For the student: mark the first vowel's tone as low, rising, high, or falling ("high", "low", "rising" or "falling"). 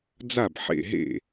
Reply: falling